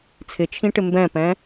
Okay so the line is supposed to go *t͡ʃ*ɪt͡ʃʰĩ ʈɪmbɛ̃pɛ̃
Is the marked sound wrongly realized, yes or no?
yes